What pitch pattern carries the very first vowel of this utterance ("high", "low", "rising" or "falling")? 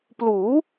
rising